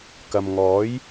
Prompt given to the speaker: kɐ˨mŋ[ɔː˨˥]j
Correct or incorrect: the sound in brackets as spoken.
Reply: correct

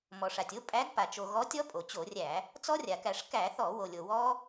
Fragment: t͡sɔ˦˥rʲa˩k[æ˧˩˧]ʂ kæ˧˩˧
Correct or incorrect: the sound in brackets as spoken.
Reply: correct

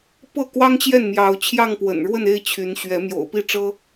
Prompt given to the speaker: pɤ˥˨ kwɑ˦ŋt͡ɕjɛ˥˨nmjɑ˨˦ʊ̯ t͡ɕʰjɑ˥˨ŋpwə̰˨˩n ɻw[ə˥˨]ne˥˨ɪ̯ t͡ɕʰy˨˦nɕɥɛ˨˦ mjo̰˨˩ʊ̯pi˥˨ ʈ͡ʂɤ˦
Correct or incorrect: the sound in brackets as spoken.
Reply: correct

